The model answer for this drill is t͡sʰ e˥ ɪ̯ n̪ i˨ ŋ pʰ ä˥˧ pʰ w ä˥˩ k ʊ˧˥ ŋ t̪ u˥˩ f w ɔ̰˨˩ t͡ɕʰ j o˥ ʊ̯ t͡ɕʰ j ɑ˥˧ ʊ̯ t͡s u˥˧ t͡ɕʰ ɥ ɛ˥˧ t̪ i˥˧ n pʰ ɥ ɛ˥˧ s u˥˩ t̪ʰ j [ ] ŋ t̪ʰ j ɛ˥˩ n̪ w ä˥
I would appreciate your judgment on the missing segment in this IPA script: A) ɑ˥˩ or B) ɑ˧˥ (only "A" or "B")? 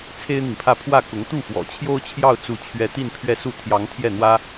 B